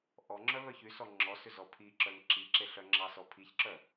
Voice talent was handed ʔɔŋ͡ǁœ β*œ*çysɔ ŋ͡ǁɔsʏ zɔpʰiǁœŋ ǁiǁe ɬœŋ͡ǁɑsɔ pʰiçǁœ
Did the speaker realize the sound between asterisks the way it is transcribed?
yes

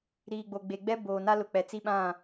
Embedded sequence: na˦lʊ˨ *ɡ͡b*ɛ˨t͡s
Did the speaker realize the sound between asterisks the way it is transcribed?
no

